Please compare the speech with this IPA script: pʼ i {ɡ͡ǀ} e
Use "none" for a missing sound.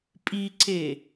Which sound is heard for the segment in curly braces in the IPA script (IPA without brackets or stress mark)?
ǀ